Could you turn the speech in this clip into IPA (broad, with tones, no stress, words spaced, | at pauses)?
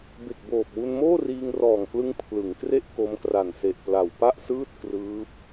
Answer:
be˨˩k̚boː˨˩p̚wu˧n moː˥˩riː˧ŋrɔː˨˩ŋklɯ˧ŋ pʰlɯ˩˦ŋkre˥˩ʔ ko˧mkra˨˩nse˨˩ʔ pla˨˩wpa˥˩ʔsɯː˥˩t̚ krɯː˦˥p̚